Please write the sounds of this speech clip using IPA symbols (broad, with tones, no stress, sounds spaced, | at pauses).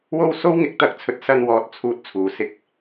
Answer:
w o˧ w s o˥ w ŋ ɪ˨˥ k̚ t̪ ɐ˨ k̚ t͡sʰ ɵ˨ t̚ s ɐ˧ n w ɔː˨ t̚ t͡sʰ uː˧ t̚ t͡sʰ uː˨ s ɪ˥ k̚